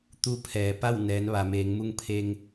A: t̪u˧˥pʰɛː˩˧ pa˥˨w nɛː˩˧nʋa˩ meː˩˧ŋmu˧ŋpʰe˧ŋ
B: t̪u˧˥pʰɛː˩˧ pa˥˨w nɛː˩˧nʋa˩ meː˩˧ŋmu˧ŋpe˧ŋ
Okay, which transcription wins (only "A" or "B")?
A